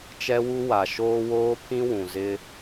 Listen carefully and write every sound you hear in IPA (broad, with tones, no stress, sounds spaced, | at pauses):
t͡ʃ ɛ˦ w u˦ w a˨ ʃ oː˦ w oː˦ pʰ ĩ˦ w ũ˨ z ɪ˦